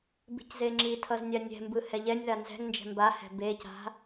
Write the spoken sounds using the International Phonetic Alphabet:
b i̤ c z e ŋ͡ǁ i tʰ ʌ z nʲ a nʲ ɛ̤ m b ɯ h ɛ ʎ ɛ nʲ ð a n z ɛ̤ ŋ n d͡ʒ ɛ̤ m b a h ɛ̤ b e c a̤

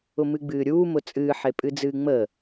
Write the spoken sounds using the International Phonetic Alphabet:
ʊ m ɨ ɡ͡b ɨː ɾʲ uː m ʊ t͡sʼ ɨː ħ e pʼ ɨ d͡z ɨː ŋ͡m ə

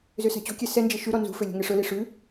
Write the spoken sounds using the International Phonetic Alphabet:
z ø s æ̤ t͡ɕ o̤ kʲ ɛ s ɛ n d͡ʒ e ʃ ʉ ɾ ɔ n z ṳ f ø lʲ o̤ ŋ e ʂ ɵ l i ʂ ʉ

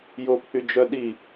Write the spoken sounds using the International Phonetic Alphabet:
j o pʰ y d͡ʒ œ ɗ i

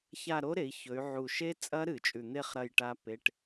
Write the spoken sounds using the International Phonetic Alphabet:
ç a˦˨ ɾ o˦˥ ɾ e˩˧ i̯ ç ɵ˩˧ y̯ ʕ u˨˩ ʃ e˦˥ t͡sʼ ɐ˦˥ ɾ ɨ˧˩˧ t͡ʃʼ ʉ˨˩ n̪ e˦˨ χ ɾ ɐ˦˨ j ʈ a˦˥ p e˧˥˧ ʈ

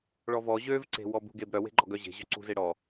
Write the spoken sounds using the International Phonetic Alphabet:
ɭ ɔ v ɔ ʑ ø v ǀ e̤ w ɔ b ṳ ɡ e b ɾ œ w e̤ ɡ͡ǃ ɔ ɡ œ ʑ e̤ ʑ ø ǀ ṳ z e ɽ ɔ

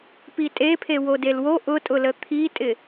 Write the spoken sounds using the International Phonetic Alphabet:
p i tʼ e pʰ e w o d e l w o ʔ ʊ tʼ ʊ l ə t̪ʰ i tʼ ɪ

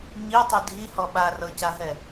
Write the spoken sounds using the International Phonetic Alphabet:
ɲ i tˤ i dʱ i h ɔ ɓ a r ɤ c a ɦ ɛ

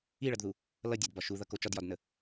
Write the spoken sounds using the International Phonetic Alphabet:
i ɭ ʌ d ð u | l ʌ dʲ æ d b ɒ ʃ u ð ʌ k o t͡ʃ ɒ d j ɒ d n ə

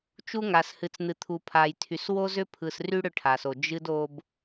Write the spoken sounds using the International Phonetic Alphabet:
t͡ʃ u˦ ŋ a˨ s h ɨ˨ t͡s n̪ ɨ˨ t̪ʰ u˨ pʰ a˨ j tʰ y˨ s w o˦ z ʏ˦ pʰ ɯ˨ s r y˦ ɽ ʏ˦ ʈʰ a˨ s o˨ d͡ʒ ɨ˦ d o˦ b

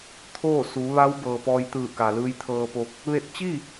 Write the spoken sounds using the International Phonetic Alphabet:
t̪ʰ oː˥˨ s u˩˧ ʋ a˧˥ w b ɤː˩ p ɔː˧ j t̪ ɯː˧˩ k a˩ l ɯː˧ j t̪ʰ ɤː˧ p o˧ k̚ | ʋ e˧˩ t̚ t͡ɕ i˥˨

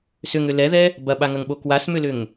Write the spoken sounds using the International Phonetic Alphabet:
s ʏ ŋ ʏ l ɛ ð ɛ | b ɐ ɓ a ŋ ɐ ŋ ɓ o k w a s m ʏ l ʏ ŋ

